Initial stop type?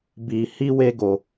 plain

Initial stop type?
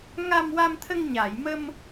aspirated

